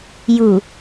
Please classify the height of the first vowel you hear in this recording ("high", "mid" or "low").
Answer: high